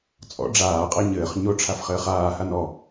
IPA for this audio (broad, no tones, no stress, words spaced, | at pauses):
t͡sʼɔ̰ ɖ͡ʐaːqʼa ɲɘːχ ɲoʈ͡ʂʰafχɘːχ aːhan ɔ